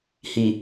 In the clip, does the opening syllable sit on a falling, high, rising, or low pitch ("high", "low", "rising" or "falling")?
low